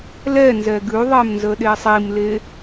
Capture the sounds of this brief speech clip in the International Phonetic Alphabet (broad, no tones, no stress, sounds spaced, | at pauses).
l ɛ n z ɛ ɡ ʉ ðˤ ɛ m n z ə ɗ e sˤ i m l e